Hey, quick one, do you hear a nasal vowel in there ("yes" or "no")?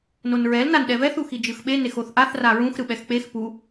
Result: yes